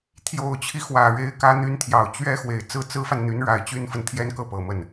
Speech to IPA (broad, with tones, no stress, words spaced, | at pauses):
t̪ʰjo˨˩ʊ̯t͡ɕʰi˦xwä˨˩ɻe˧˥ɪ̯ kä˧˥n̪y˧˥nt̪ʰjɑ˨˩ʊ̯ t͡ɕɥɛ˥ xwe˨˩ɪ̯t͡sɹ̩˥˩ t͡sɹ̩˥fa˨nn̪y˧˥n ɻa˨˩ɪ̯t͡ɕy˥nfə˨n t̪ʰjɛ˥nkɤ˥˩pɤ˨˩mə˥˩n